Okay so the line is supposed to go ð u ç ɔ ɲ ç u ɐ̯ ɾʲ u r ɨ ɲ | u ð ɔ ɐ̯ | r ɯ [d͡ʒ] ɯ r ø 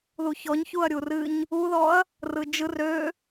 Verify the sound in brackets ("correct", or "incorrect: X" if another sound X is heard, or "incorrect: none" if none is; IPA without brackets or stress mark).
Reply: correct